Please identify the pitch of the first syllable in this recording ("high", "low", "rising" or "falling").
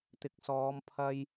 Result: rising